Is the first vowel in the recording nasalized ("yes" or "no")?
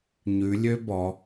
no